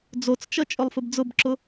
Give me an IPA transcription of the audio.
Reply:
d͡z o t͡s t͡ʃ ʌ t͡ʃʼ ʊ lˠ f ɘ b d͡z ʊ b ǁ ʊ

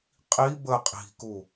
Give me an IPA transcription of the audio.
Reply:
qʼ i b ə qʼ i̤ k u

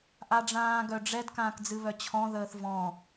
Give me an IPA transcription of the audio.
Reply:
ʔ a ɖ͡ʐ ãː ɡ œ ɖ͡ʐ ɛ d k ãː k d͡z ɨ β œ t͡ɕʰ ɔ̃ ð əː θ v ɔ̃

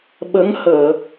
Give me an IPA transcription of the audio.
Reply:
ɓ ə˧˥ ŋ h əː˨˩˨

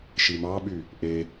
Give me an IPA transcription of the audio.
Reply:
ʃ i m ɑ ɓ y | ʔ e

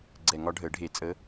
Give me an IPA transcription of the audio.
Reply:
ɡ͡ǀ ɛ˧˩˧ ŋ ɒ˧˥ ɖʱ əː˩˥ ɖʱ e˧˩˧ t͡sʼ ə˧˥

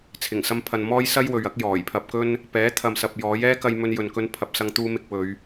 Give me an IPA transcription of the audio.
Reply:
t͡sʰ ɪ˨˩ ŋ s ɐ˧ m pʰ ɐ˨ n m ɔː˥ j s ɐ˥ j w ɵ˨ ɥ ɐ˨˥ k̚ j ɔː˨˩ j pʰ ɐ˧ p̚ k ɵ˥ n | p ɛː˨˥ t̪ʰ ɐ˨ m s ɐ˨ p̚ j ɔː˨˥ j ɛː˥ k ɐ˧ j m ɵ˧ n j ɵ˨ n k ɵ˧ n pʰ ɐ˨ p̚ s ɐ˧ ŋ t̪ uː˧ m ɪ˧ k̚ w ɵ˨˧ ɥ

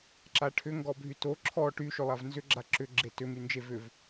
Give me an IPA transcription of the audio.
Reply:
ǁ a ʈʰ ʏ ŋ ɡ ɔ bʱ y t o ǁʰ ɔ ʈ y ʃ ʏ lˠ a v n z ʏ ɡ͡ǁ a ǁ ʏ ɡ͡ǁ e t ʏ m y n d͡ʒ e v ʏ v

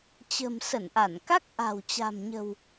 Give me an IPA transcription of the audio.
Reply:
t͡ɕ ə̤˨˩ m s ə˧˩ n ʔ a˧˩ n k a˦˥ k̚ ʔ a̤˨˩ w t͡ɕ a̤˨˩ m ɲ ə̤˨˩ w

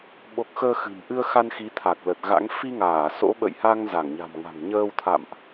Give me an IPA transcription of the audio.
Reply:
ɓ o˦˥ k̚ x əː˧ x ɨ̤˨˩ m ʔ ɨ˧ ə̯ x a˧ n x i˨˦ t̪ʰ a˨˩ k̚ l ə˨˩ t̚ ɣ a̰˧˥ ŋ f i˧ ŋ aː˧˩ s o̰˧˥ ɓ ə̰˧˨ j h a˧ ŋ z a˧˩ ŋ ɲ a̤˨˩ m ŋ a̤˨˩ ŋ ɲ əː˧ w t̪ʰ a̰˧˨ m ʔ

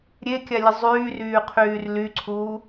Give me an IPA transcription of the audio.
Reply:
ɾʲ e kʲ a lʲ ə zˤ yː r yː qʰ yː r l y ǀʰ uː

